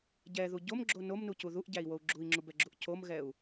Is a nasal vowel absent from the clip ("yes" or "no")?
yes